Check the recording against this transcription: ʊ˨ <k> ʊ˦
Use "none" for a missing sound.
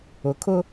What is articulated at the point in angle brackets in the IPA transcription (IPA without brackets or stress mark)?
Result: kʰ